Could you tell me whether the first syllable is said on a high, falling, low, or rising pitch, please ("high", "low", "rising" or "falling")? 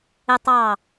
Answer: high